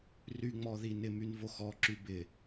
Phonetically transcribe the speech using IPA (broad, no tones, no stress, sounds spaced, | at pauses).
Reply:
r y ŋ͡m ɔ ð i n ɪ m y n v o x ɔ ǁ y b ɪ